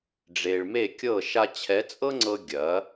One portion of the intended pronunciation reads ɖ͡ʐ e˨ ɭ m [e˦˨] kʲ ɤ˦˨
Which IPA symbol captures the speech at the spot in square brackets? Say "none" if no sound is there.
e˦˨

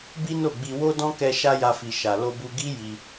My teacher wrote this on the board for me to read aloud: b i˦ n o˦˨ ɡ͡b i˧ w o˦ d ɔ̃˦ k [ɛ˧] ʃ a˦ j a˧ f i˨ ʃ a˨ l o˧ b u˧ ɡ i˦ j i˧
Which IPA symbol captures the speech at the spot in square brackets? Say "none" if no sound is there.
ɛ˧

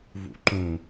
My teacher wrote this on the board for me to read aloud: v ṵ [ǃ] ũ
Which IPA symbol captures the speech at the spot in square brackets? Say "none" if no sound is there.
ǃ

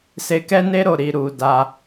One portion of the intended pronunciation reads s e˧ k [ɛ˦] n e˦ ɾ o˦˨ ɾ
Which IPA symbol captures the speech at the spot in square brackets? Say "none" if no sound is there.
ɛ˦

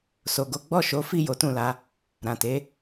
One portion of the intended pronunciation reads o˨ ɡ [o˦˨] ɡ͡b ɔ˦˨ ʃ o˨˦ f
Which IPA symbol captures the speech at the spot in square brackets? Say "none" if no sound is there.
o˨˦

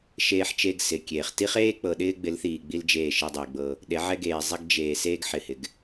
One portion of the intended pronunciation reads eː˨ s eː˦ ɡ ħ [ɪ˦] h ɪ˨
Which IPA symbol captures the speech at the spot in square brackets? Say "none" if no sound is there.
ɪ˨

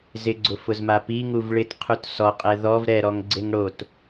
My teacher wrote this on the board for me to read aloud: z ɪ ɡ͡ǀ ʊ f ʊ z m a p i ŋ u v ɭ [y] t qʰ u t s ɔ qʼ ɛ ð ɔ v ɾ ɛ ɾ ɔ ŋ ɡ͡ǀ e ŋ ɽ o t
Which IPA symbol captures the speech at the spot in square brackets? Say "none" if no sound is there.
ɪ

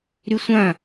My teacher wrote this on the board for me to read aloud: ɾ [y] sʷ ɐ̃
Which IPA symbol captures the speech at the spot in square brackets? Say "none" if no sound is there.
y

